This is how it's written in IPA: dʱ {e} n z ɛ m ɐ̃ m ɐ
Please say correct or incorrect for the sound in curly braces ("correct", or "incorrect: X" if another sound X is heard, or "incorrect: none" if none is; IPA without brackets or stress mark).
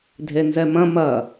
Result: correct